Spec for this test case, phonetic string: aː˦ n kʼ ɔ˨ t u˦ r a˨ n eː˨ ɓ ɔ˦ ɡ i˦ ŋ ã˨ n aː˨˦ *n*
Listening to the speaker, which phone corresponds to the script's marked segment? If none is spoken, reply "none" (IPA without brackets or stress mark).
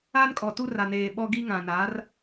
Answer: r